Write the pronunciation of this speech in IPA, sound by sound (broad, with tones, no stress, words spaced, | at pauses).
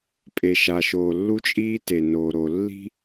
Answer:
pʼe˨ʃa˨ ʃoː˨lːu˦t͡ʃʼiː˦ te˨noː˨ɾo˨ lːi̤˦